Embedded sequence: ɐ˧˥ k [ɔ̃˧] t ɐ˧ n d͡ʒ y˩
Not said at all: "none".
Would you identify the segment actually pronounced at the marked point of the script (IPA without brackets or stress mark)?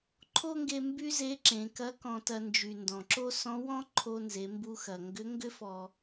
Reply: ɔ̃˧